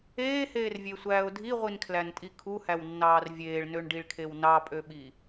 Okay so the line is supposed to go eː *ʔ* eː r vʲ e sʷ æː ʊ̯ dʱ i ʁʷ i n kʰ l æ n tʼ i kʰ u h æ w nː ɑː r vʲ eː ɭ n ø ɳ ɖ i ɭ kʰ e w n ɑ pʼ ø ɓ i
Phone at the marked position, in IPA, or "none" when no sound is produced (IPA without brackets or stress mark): h